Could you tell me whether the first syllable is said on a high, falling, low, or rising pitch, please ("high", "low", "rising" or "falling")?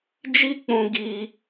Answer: high